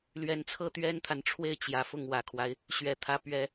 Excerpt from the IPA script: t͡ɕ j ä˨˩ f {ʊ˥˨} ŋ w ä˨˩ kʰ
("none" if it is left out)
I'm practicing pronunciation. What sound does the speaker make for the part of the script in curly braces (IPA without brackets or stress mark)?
ʊ˥˨